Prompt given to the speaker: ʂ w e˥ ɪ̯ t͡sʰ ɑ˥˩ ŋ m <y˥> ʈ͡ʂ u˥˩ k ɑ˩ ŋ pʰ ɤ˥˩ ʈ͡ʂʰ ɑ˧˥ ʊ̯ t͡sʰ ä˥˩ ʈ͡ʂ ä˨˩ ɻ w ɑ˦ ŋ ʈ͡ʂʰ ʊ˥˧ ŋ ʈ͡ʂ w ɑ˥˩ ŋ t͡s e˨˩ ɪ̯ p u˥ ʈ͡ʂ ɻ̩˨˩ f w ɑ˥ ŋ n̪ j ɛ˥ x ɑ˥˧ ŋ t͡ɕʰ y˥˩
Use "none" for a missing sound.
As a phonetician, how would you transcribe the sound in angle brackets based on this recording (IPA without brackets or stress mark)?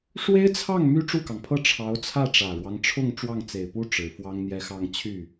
y˥